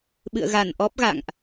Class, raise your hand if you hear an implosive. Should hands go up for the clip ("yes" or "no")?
yes